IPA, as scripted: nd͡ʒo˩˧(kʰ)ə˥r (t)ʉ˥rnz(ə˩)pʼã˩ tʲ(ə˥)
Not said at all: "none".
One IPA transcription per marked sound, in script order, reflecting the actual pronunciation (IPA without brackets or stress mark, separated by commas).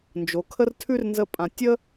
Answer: kʰ, tʰ, ə˧, ə˥